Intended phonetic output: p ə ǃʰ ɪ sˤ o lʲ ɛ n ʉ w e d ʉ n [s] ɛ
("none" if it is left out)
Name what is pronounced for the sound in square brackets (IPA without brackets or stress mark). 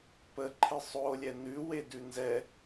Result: z